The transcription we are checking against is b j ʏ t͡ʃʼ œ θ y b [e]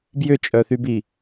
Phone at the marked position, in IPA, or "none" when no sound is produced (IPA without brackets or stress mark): i